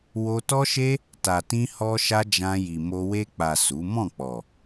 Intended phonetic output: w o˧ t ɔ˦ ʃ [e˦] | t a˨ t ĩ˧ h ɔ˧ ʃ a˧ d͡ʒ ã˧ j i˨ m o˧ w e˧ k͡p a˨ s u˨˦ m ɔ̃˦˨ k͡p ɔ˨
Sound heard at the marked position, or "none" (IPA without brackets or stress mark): e˦